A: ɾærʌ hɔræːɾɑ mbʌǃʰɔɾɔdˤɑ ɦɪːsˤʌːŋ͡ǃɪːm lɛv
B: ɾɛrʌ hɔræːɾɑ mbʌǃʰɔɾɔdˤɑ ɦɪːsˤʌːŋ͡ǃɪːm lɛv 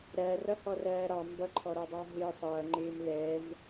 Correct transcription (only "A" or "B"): A